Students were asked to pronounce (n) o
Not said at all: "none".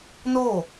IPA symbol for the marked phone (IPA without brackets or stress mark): n